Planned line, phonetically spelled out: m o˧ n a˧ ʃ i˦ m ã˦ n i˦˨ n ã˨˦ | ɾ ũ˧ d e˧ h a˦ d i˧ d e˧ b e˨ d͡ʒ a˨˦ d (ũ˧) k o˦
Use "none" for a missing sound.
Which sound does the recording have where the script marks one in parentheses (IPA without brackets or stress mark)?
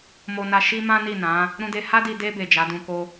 ũ˧